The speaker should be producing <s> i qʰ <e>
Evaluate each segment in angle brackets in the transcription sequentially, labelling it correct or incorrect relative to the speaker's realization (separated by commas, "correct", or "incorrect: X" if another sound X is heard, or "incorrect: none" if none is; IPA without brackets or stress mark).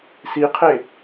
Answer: correct, correct